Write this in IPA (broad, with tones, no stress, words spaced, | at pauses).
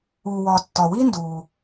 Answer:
uː˩wɒː˩ tːɒ˩ wiː˥nduː˩